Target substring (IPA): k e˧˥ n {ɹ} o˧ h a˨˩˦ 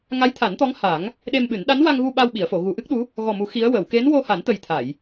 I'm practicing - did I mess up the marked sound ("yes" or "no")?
yes